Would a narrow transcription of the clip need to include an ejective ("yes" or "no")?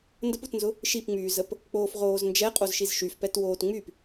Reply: yes